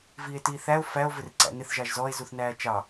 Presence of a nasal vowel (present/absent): absent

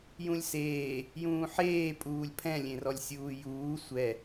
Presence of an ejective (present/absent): present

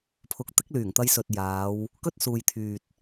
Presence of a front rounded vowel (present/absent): present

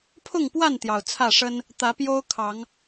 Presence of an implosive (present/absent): absent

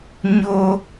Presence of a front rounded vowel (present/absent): absent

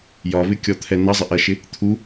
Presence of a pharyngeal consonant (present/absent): absent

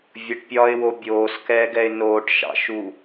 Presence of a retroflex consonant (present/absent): present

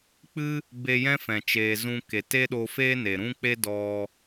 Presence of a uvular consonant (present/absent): absent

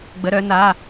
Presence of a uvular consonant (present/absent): absent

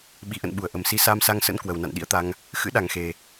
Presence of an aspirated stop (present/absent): absent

